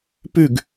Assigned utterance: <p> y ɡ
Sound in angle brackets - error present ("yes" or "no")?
no